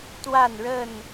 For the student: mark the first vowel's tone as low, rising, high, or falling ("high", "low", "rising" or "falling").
falling